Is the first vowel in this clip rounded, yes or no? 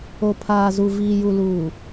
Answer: yes